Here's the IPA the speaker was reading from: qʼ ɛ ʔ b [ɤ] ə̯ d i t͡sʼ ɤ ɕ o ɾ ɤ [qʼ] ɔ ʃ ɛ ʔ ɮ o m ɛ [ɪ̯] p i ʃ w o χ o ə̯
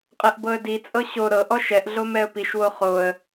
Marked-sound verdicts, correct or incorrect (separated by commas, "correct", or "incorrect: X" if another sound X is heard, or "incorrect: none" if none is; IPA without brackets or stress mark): correct, incorrect: ʔ, incorrect: ə̯